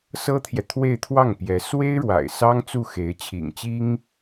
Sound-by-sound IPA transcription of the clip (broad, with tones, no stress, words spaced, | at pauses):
sɤ˥t̪ʰjɛ˨ t̪ʰwe˥˧ɪ̯t̪ʰwɑ˥˩ŋpjɛ˧˥ swe˥ɪ̯ɻwa̰˨˩ɪ̯ sɑ˥ŋt͡su˥˩ xe˧˥ɪ̯t͡ɕʰḭ˨˩ŋt͡ɕi˥ŋ